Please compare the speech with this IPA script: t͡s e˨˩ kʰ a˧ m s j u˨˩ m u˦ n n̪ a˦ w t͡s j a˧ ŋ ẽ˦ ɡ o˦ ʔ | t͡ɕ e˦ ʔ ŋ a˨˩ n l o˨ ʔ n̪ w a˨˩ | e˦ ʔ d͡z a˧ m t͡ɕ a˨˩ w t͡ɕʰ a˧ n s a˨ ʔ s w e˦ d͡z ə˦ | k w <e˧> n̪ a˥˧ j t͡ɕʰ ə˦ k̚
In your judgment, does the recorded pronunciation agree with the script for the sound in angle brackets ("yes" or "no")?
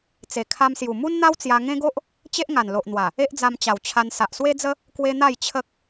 yes